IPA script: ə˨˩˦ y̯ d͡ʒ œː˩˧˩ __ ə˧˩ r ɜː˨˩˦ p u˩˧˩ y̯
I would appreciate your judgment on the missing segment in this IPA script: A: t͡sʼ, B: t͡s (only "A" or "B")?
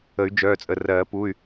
A